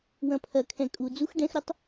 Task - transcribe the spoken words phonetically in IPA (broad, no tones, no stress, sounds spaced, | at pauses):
w ɐ̃ pʰ ɐ kʰ ɛ̃ kʼ u d͡z u x ɖ ɛ̃ x ɾ ɐ tˤ